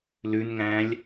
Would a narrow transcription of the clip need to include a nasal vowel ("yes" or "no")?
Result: yes